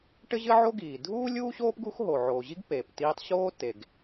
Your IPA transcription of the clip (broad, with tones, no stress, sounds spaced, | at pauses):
ʈ ɘ˥ ʑ ɘ˥ ʕ o˥ ɡ iː˩ dʱ uː˥ lʲ uː˥ ɕ oː˥ p ɡ u˥ x ɦ o˩ ʕ oː˩ ʑ i˥ ɡ p eː˩ p t iː˥ tˤ ɕ oː˥ t e˩ ɡ